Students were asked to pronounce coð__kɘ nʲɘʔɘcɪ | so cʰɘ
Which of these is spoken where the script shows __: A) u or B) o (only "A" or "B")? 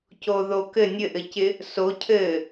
B